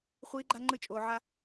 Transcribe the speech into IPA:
χʷ iː˨˦ ɡ͡ǃ a˧ ŋ͡ǃ ɯ˧ t͡ʃʼ oː˨ ʕ a˧

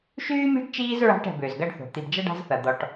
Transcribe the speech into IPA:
ʃ yː˥ mʲ ɛ̤˥ ɖ t͡ʃ iː˥ z ɹ a̤˦ ʈ ɛ̤˨ b ʏː˩ z ɡ ɐ˦ ɖ θ o̤˩ t̪ i˨ b d͡ʒ ɐ˥ ɖ a̤˦ z θ ɐ˩ d̪ ɔ˨ ʈ

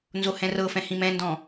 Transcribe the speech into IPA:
n z o h ɛ̃ r ɤ f ɛ̃ h ĩ m ɛ̃ n d ɔ̃

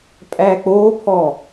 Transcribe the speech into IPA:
pʼ æ k͡p o pʰ ɔ

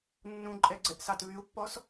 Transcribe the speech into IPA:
nː ũ ǃʼ ɛ ɡ͡ǀ ɛ ʔ s ɑ t β y u̯ pː ɔ s

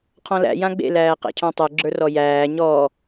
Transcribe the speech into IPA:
qʰ ɔ̃ l æ̰ j ã ɡ͡b ḛ l æː q æ̰ cʰ ɔ̃ tˤ ɘ ɡ͡ǁ ə˞ r ɔ j æː ɲ ɔ

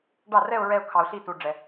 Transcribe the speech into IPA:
ɖ ɑ˥˩ r ɛ˥˧ ʊ̯ ɹ ɛ˥˧ ʊ̯ kʰ ɑ˧ ʊ̯ ɬ i˥˧ t u˧ ɖ͡ʐ ɛ˧

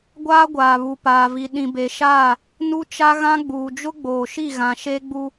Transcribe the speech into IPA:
ɡʷ aː˦ ɡʷ aː˨ β u˨ p aː˨ v i˨ ɗ ĩ˨ b e˨ ʃ aː˦˨ | n u˦ t͡ʃ a˦ ɣ ã˦ ɡ͡b uː˨ d͡ʒ ʊ˦ ɡ͡b oː˨ ʃ i˦˨ ɣ ã˨ ʃ e˦ ɡ͡b u˦

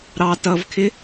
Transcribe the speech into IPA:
ɾ ɑ t ʌ v kʰ ɪ

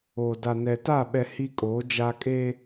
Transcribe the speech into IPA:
o˨ d a˨ n ɛ˨ t a˦˨ ɓ ɛ˦ h i˦ kʼ oː˨˦ d͡ʒ a˦ kʼ e˦

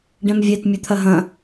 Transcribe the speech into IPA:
ɖ ɛ̃ m vʲ ɛ t mʲ ɵ t̪ʰ ɐ ɦ ɐ̃

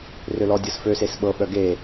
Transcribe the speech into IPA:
r ø l ɔ dʲ ɤ s f ø s e s ɓ ɤ ɓ œ ɡ e

